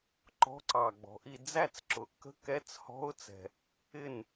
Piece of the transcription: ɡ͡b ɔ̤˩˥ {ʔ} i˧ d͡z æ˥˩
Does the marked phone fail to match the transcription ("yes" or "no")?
no